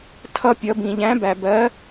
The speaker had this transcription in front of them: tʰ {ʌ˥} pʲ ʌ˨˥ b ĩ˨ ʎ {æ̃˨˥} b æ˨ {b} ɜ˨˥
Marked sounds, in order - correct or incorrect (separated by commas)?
correct, correct, correct